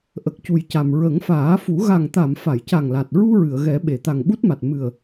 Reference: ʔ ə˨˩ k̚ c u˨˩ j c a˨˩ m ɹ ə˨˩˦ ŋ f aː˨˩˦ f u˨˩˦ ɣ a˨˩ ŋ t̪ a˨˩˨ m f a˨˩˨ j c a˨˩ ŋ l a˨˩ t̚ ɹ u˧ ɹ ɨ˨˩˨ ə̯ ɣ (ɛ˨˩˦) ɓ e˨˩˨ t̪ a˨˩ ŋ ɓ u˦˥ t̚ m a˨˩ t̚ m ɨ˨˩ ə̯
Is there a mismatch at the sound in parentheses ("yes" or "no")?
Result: no